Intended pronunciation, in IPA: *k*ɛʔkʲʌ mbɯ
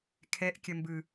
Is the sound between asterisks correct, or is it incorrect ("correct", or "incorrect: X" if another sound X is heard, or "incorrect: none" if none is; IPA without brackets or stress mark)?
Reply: incorrect: kʰ